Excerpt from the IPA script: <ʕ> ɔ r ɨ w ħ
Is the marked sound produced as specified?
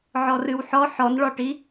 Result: yes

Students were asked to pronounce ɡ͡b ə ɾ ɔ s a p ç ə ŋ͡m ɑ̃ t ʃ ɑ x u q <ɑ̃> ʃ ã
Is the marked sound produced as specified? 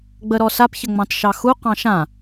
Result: yes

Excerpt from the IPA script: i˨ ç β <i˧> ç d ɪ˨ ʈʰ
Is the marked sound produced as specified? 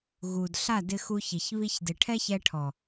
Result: yes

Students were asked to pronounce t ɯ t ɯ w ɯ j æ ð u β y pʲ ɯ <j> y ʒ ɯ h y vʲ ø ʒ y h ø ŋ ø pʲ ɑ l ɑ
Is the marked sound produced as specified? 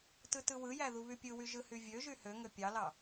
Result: no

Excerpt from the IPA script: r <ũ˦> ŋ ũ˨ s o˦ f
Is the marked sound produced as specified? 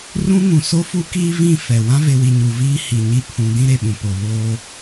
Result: yes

